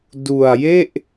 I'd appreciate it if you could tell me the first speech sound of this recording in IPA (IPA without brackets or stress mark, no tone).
d